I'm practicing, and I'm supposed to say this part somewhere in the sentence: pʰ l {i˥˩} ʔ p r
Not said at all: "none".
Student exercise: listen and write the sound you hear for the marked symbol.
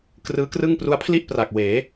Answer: i˥˩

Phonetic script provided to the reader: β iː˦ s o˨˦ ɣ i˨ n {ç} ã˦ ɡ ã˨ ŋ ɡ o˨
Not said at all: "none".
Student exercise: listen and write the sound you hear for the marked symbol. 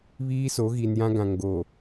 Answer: j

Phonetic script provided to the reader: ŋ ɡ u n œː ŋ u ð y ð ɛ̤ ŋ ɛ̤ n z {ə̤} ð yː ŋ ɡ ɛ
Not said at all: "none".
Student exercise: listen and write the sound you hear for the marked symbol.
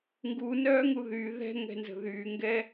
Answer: ə̤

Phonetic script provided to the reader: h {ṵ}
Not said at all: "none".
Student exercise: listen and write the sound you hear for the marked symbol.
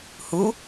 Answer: u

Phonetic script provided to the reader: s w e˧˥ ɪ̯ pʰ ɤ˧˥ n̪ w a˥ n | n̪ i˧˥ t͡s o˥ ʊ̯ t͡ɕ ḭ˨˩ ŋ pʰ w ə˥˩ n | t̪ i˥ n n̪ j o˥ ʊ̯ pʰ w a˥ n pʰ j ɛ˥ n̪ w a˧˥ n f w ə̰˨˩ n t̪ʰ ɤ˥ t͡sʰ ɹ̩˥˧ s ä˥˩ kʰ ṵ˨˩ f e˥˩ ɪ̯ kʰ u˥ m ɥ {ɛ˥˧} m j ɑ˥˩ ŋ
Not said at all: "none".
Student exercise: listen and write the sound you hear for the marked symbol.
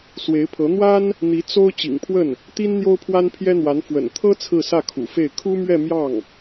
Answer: ɛ˥˧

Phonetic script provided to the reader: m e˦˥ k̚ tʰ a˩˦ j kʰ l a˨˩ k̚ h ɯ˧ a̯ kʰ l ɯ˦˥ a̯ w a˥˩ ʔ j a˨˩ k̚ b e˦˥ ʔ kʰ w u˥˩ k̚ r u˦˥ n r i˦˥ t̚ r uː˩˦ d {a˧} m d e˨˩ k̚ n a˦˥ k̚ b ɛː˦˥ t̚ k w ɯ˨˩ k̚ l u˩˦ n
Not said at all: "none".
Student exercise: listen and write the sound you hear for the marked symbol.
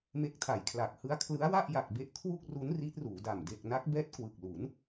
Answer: a˨˩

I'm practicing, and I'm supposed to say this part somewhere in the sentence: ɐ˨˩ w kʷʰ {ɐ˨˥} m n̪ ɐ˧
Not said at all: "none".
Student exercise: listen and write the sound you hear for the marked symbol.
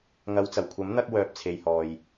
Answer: ɐ˨˥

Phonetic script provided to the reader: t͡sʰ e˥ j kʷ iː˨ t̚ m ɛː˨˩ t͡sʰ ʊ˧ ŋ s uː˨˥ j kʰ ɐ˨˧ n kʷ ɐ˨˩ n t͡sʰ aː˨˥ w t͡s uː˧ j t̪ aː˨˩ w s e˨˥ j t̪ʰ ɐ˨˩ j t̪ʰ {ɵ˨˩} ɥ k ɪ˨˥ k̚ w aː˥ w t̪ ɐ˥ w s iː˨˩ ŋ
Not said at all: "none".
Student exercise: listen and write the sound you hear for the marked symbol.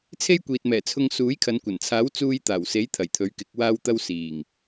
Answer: ɵ˨˥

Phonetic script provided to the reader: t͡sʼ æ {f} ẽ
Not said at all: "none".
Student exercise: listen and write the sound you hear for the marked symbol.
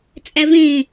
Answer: v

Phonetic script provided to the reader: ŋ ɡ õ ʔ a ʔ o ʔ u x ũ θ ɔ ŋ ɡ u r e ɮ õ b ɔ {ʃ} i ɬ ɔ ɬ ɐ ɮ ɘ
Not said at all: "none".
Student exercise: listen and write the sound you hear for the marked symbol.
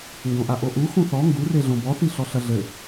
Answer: θ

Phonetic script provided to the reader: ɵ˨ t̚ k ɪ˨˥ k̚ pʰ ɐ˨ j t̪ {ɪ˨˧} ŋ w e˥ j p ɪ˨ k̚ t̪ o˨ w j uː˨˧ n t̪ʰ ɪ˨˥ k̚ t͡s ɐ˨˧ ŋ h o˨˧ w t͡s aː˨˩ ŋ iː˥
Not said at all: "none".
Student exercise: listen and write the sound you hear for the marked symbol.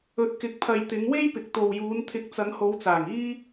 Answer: ɪ˨˧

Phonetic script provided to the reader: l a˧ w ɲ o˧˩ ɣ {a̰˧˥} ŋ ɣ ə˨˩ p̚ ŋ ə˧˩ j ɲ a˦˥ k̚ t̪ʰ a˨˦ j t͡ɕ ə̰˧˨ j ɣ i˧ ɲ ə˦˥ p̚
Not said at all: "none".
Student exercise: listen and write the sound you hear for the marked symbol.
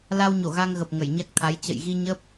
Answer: a˧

